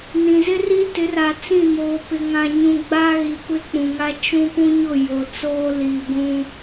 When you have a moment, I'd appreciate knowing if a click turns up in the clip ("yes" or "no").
no